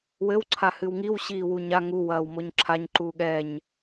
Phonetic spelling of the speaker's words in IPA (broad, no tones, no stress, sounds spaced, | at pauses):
w ɘ w ǀʰ a h ɨ w ŋ i w ɕ iː w u ɲ a ŋ u w ɐː w m o ɲ ǁʰ a ɲ ǃ uː ɠ ɛ ɲ